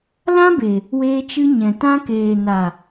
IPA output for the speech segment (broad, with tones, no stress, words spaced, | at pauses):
lã˦be˨ | weː˧t͡ʃɨ˧ɲɛ̃˨ tã˧keː˨na˨